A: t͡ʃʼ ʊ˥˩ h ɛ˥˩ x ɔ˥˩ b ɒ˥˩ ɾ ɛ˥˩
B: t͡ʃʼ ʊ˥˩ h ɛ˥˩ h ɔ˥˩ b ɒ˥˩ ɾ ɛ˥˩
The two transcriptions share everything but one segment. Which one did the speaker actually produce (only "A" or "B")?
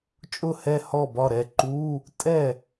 B